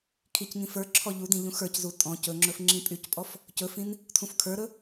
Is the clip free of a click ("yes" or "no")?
no